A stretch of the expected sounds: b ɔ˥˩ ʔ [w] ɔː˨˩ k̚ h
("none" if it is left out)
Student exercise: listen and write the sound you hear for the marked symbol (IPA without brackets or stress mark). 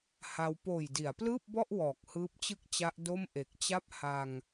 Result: w